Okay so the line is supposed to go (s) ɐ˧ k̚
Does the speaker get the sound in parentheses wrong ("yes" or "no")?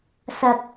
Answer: no